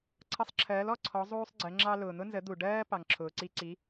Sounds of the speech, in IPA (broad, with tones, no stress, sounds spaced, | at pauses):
ǀʰ ʌ˧ sˤ ǁʰ ɜː˩˥ l ɔ˥˩ ǀʰ ɔ˩˥ zˤ uː˥ sˤ ɡ͡ǀ ɜ˩˥ ŋ͡ǁ ɑ˥ l ʊː˩ n̪ ʊ˥ n z ə˩˥ d̪ u˩ ɖ ɜː˥ p ɑ˩ ŋ ǁʰ ʊː˩ ǀ i˧ ǀ i˩˥